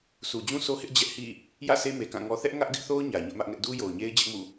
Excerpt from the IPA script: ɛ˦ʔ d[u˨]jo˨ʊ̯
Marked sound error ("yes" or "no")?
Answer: yes